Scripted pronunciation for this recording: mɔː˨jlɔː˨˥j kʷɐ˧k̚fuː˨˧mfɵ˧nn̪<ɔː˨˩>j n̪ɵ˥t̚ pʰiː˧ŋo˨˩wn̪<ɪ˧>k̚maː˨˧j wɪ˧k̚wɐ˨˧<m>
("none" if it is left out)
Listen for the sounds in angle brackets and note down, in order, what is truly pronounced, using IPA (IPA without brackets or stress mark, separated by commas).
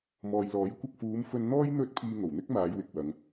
ɔː˥, ɪ˥, ŋ